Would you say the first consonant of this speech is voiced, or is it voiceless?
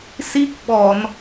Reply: voiceless